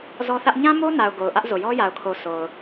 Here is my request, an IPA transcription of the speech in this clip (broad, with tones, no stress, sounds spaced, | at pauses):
z ɔ˦ θ ä˦ ʔ ɲ ã˦ m o˦ n a˨ ʊ̯ ɡ o˨ ʊ̯ ʔ ä˦ ʔ z o˨ j ɔ˦ j a˨ ʊ̯ kʰ o˨ s o˨ ʊ̯